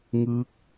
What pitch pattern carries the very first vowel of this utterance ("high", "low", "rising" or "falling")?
rising